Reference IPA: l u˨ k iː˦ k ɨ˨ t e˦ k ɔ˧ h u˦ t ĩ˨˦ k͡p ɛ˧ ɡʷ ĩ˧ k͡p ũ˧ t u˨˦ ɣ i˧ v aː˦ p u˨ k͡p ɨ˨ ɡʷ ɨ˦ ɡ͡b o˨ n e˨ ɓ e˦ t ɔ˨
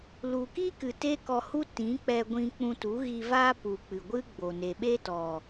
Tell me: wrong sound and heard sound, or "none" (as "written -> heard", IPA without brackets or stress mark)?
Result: iː˦ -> i˦